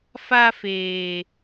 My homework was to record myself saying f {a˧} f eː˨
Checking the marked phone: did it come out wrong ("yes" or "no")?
no